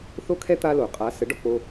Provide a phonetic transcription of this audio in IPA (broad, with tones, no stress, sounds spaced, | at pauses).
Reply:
θ o˥ kʰ ɛ˥ t̪ a˥ l o˩ qʼ a˩˥ s ə˩˥ ɖ ɔ˧ k͡p o˧